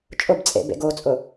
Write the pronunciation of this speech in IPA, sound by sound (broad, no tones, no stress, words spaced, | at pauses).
t͡ʃʼʊbt͡sʼḛbḛ ɡot͡sʼʊ